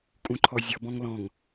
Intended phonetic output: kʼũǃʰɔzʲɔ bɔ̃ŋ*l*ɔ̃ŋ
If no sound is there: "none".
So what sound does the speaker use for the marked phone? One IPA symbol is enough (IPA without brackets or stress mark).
l